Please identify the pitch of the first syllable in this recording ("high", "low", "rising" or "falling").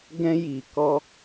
high